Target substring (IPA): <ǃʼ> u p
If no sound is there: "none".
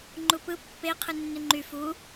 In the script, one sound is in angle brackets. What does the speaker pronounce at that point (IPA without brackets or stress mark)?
ŋ͡ǃ